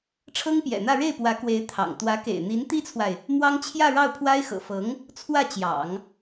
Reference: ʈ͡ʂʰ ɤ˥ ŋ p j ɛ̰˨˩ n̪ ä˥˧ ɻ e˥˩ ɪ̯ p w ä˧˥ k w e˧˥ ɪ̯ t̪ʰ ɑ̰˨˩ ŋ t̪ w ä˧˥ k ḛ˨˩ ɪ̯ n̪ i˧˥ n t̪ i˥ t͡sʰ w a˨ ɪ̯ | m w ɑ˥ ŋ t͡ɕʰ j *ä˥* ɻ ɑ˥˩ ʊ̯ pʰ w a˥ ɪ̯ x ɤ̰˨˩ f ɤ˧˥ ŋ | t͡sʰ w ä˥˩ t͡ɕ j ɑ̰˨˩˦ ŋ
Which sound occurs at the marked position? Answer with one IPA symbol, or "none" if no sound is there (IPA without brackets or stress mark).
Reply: ä˥˧